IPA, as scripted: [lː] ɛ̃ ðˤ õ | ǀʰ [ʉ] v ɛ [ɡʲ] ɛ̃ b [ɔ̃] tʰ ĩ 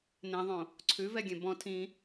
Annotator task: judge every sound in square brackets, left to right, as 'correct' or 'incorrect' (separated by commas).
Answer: incorrect, correct, correct, correct